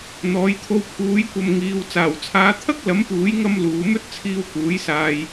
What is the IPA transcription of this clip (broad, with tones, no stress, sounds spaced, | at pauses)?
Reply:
n̪ ɔː˨˥ j t̪ʰ o˧ w pʰ uː˨˥ j kʷ ɐ˨ m ŋ iː˨˧ w t͡s aː˨˩ w t͡sʰ aː˨˧ t̪ʰ ɐ˥ k̚ l ɐ˨˥ m p uː˨˥ j ŋ ɐ˧ m l uː˨˧ m ɵ˥ t̚ t͡sʰ iː˧ w k uː˨˥ j s aː˧ j